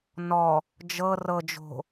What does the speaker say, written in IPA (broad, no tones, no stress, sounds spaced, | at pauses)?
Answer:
n ɔ | d͡ʒ ɤ r ɤ d͡ʒ o̤